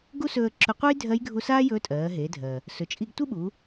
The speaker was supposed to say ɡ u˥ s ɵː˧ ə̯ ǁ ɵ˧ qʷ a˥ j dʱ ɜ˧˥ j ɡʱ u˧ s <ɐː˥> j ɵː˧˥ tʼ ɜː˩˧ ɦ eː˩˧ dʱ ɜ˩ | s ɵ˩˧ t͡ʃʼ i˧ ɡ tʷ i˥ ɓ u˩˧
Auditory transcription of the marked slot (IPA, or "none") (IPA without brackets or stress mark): aː˥